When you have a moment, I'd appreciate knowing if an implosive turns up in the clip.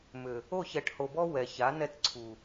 no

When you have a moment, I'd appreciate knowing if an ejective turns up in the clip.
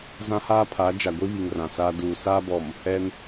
no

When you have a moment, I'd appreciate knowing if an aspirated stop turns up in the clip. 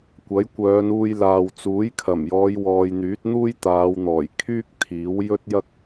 yes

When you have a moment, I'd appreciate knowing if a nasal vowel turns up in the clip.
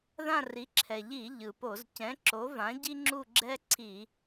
yes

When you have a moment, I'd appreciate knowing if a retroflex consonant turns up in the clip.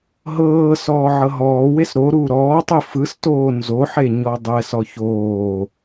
no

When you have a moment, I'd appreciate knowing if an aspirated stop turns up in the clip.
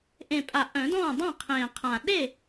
yes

